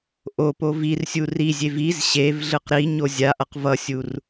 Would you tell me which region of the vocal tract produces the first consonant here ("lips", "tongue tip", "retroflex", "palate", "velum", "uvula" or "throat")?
throat